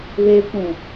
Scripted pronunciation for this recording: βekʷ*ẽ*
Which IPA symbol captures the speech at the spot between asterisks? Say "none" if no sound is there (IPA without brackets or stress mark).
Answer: ẽ